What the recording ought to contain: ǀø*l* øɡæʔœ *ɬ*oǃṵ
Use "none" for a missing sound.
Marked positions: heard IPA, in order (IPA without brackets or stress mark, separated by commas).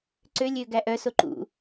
lʲ, s